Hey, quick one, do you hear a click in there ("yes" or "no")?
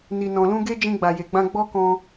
no